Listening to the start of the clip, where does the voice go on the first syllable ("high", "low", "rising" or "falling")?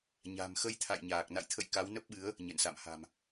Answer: low